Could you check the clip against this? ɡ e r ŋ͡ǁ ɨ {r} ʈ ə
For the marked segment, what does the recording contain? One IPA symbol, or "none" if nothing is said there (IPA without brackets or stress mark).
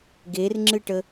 none